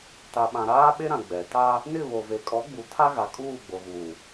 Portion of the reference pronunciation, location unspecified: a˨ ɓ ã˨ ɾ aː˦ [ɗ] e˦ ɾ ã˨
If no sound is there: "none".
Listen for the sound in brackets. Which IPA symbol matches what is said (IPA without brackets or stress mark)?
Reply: ɓ